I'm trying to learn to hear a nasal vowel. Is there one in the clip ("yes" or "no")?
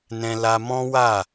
yes